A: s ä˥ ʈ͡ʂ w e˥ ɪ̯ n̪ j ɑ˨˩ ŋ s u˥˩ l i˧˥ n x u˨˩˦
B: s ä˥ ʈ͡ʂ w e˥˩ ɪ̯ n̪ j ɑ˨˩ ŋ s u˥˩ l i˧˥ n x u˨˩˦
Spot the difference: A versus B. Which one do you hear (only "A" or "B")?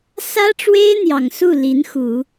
A